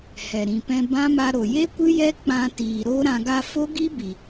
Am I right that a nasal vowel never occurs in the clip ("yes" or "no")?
no